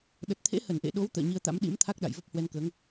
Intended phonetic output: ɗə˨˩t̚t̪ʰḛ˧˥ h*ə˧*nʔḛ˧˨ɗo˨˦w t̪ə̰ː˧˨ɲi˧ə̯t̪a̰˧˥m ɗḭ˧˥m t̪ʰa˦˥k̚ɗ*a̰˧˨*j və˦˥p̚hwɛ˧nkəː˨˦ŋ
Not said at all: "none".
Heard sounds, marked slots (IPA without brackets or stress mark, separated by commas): ə˧˩, a̰˧˨